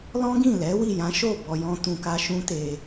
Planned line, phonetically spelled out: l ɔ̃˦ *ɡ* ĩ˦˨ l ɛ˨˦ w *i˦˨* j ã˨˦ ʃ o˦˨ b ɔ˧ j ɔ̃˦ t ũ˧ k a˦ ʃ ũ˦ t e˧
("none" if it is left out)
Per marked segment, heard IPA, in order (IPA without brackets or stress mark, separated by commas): ɡ, i˦˨